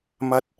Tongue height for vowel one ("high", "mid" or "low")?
low